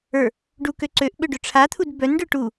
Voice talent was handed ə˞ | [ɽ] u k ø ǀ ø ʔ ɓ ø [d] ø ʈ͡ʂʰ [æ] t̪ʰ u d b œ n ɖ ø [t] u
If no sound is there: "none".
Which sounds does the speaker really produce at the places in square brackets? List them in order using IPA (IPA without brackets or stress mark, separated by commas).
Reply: ɖ, ɖ, a, ʈ